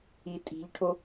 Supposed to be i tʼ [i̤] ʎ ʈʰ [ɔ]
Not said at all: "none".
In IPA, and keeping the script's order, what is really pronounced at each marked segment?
i̤, o

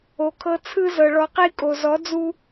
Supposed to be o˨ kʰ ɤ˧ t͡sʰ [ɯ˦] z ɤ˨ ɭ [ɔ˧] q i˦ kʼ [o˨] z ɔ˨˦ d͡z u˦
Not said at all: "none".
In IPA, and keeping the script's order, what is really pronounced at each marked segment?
ɯ˦, ɔ˧, o˨

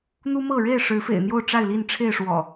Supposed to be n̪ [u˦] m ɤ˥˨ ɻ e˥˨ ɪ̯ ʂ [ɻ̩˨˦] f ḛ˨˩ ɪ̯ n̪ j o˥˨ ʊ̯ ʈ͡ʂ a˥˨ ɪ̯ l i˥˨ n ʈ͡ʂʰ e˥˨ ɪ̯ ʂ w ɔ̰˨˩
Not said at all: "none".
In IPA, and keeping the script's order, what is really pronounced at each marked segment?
u˦, ɻ̩˨˦

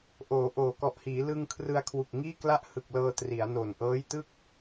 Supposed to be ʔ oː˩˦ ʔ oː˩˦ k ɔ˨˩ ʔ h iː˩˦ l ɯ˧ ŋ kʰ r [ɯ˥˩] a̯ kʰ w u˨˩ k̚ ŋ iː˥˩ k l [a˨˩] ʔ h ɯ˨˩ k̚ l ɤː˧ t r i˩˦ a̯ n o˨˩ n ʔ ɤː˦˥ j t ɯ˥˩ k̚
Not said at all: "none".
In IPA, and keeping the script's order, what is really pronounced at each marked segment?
ɯ˧, a˥˩

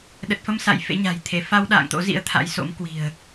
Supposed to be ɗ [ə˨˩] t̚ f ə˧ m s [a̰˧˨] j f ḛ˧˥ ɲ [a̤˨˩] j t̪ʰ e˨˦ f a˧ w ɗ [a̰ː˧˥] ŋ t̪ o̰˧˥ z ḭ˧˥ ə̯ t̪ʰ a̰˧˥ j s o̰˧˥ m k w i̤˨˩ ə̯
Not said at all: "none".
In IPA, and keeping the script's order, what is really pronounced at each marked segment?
ə˨˩, a̰˧˨, a̤˨˩, a̰ː˧˨

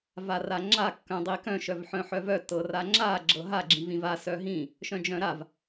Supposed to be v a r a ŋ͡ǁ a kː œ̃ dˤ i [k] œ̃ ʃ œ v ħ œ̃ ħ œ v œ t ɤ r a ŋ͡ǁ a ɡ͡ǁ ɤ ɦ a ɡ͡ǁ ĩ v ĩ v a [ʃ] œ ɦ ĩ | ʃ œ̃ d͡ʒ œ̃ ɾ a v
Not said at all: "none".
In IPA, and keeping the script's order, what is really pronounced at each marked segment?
k, s

